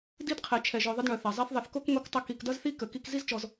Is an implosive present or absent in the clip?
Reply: absent